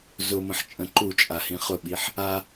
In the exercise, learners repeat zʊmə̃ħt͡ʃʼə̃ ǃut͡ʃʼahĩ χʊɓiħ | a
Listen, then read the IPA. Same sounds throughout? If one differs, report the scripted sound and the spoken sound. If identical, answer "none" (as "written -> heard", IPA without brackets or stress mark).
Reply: none